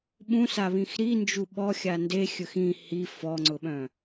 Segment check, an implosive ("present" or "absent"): present